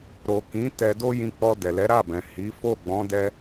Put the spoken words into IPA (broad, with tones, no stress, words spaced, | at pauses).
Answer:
ɾo˨ kĩ˨˦ tɛ˧do˦jĩ˧k͡pɔ˧ dɛ˨lɛ˨˦ɾa˦˨bɛ̃˨ hi˨˦ fo˦˨ɡ͡bɔ̃˨˦dɛ˧